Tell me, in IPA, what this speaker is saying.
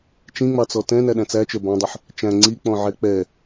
t͡ʃ ĩ ŋ͡m ɑ t͡s ɔ t ɛ̃ n æ ɗ æ̃ t͡s æ t͡ʃ ə˞ b ɑ̃ dˤ ʊ ħ | t͡ʃ æ̃ ŋ͡ǀ i k͡p ɔ̃ ʕ ɛ k͡p ɛ

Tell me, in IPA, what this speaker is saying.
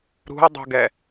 ɾ ṳ ɐ̯ dˤ ṳ ɡ ɛ

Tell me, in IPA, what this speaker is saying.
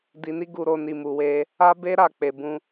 d i˧ n i˦ ɡ u˧ ɾ o˧ n i˨ m u˨ w e˧ | a˦ b e˦ ɾ a˦˨ k͡p e˨ b ũ˧

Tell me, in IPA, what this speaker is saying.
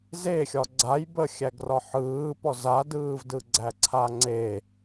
z e xʲ ɒ ɡ͡ǀ a j b ə xʲ æ ɡ r ɒ ħ ɯː p ɔ z a d ɯː v d ɯ ɡ͡ǀ æ ǀʰ a ŋ͡ǀ e

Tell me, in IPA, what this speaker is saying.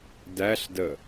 d æ ɬ d ə

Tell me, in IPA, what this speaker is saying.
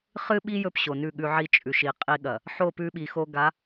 χ ɨ˦ ɓ i˦ j ɵ˦ p ɕ o˨ n ʉ˦˨ ɠ ʉ˦ ʕ i˦ t͡ʃʼ ʉ˨ ʃ i˨ qʼ i˦ ɠ ɐ˨ | ħ o˦˨ p ʉ˦ ɓ i˨ x o˦ ɡ a˨˦

